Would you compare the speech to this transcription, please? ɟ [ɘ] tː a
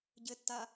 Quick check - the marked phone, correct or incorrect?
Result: correct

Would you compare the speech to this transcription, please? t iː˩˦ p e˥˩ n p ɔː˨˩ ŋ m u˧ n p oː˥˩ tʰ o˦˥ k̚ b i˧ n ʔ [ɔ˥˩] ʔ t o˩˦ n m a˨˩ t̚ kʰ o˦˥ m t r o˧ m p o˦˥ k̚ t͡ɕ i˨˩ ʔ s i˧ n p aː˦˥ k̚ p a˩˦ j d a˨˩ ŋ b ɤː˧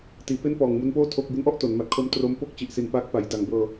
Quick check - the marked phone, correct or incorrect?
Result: correct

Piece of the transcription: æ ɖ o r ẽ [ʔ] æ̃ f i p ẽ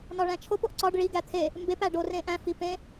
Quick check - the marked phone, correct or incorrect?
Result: correct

